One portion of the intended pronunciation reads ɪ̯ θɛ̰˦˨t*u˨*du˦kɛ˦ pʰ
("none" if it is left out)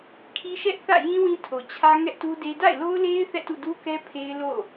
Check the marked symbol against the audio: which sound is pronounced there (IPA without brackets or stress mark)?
ṵ˦˨